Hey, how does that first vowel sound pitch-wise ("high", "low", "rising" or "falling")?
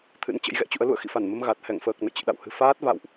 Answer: rising